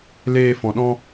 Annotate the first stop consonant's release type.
implosive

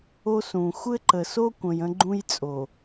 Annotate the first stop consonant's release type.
click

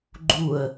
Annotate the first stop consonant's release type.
click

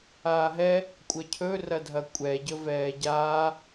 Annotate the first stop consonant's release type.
ejective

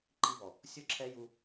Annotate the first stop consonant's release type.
click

